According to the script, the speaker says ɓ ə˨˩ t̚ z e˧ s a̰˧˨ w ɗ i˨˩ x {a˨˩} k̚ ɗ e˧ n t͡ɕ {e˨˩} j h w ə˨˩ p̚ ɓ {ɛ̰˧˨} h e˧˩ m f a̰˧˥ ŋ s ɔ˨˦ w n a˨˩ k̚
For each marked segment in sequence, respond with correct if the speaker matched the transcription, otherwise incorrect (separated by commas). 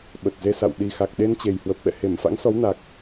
correct, correct, correct